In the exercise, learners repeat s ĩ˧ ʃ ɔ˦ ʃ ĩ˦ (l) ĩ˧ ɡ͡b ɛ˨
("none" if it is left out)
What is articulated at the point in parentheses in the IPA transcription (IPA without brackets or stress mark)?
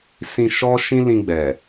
l